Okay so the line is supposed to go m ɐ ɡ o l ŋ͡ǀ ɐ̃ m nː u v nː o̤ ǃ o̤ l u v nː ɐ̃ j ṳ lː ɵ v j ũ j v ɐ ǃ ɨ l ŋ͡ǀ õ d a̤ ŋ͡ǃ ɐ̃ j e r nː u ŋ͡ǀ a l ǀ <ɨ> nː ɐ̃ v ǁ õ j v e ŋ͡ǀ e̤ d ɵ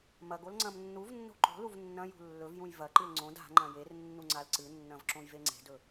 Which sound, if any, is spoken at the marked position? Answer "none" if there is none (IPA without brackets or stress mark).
ɨ